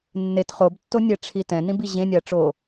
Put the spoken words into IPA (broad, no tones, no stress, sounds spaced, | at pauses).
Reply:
nː e t χ o b tː o nʲ ɛ ʈ͡ʂʰ i t ɛ̃ n ĩ b i ʑ ẽ nʲ a ʈ͡ʂ o